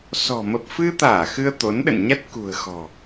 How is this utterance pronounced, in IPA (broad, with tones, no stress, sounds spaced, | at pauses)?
s ɔ̤˨˩ m ə˨˩ p̚ f ɨ˧ t̪ aː˧˩ x ɨ˧ ə̯ t̪ o˨˦ n ɗ ə̰˧˨ n ɲ a˦˥ t̚ k ṳ˨˩ ə̯ x ɔ̤˨˩